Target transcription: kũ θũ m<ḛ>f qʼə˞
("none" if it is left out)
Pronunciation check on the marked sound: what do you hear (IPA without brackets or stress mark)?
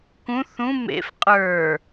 ḛ